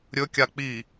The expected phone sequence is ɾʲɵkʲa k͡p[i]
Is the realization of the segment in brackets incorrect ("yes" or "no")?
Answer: no